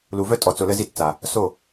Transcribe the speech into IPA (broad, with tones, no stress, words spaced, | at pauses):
lu˨vœ˦tʼɔ˨t͡so˨ lə˦zi˦tt͡sa˨ | so˦˨